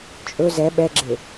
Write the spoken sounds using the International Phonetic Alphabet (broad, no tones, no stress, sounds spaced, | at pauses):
t͡ʃʼ ɵ z ɛ ɓ ɛ ɡ͡ǁ e